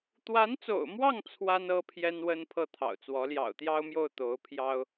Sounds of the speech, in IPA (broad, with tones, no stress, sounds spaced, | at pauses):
t̪ w a˧˥ n t͡s o̰˨˩ ʊ̯ m w ɑ˥˩ ŋ t͡sʰ w a˥ n ɤ˥ pʰ j ɛ˥ n w ə˥ n pʰ ɤ˥˩ t̪ʰ ɑ̰˨˩ ʊ̯ t͡s w ɔ˧˥ l j ɑ̰˨˩ ʊ̯ t̪ j ɑ˥ ʊ̯ m j o˥˩ ʊ̯ t̪ o˧˥ ʊ̯ pʰ j ɑ˥ ʊ̯